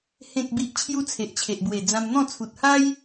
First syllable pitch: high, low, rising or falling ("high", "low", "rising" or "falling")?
low